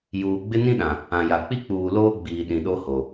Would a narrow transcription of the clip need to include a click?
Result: no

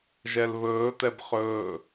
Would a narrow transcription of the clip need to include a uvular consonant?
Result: yes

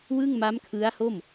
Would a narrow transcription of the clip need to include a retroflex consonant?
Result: no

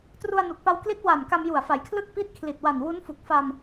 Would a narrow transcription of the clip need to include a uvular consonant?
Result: no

